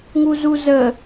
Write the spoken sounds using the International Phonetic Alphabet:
ŋuzuzə

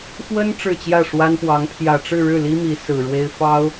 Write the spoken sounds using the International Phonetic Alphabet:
xwə˥n ʈ͡ʂɻ̩˥˧t͡ɕjä˥˩ʂwa˥npwɑ˧˥ŋ pʰjä˨˩ʈ͡ʂɻ̩˥˧ɻɻ̩˥˩li˥ mi˧˥ sɹ̩˨˩ɻwe˥ɪ̯ fɑ˥ʊ̯

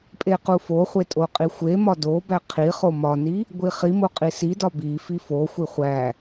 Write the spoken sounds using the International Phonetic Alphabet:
pʼequfoχʷe tʼoqʼixʷemɒ do bæqʰiχo mɒni | ɡʷiχimo qʼisidɒ bifi foxʷi χʷæ

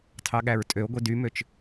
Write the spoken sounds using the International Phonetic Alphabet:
tʰɑɠæɹtʼøo̯ɡʷi dymøt͡ʃ

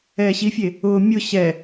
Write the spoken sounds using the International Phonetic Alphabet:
ɛːɕifʲe | ʊː mʲʊ ɕɛ

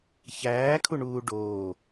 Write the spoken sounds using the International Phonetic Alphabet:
çæːkʰuɳuː ɖoː

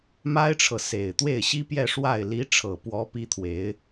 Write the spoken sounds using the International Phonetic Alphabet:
ma˥ɪ̯ʈ͡ʂʰɤ˨ se˨˩ɪ̯ t̪we˥˩ɪ̯ɕi˥pjɛ˥˧ ʂwa˥˩ɪ̯ li˧˥ ʈ͡ʂʰɤ˨˩ pwɔ˧˥ pi˥t̪ʰwe˧˥ɪ̯

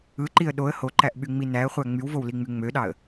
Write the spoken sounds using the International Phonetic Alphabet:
ɯǃiə̯ ɗoə̯ hoǃæʔɓyŋ͡mi næə̯χʷæ ŋ͡mywvowliŋ͡my ŋ͡møɗɑə̯

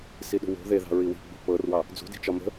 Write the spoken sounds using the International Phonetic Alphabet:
siɗṳwo̤ ðeðɑ̤ ɹiwi̤ ɡ͡bṳpɤrwɑ | d͡zṳdi̤t͡ʃɒ mə̤

